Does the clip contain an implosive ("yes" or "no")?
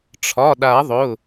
yes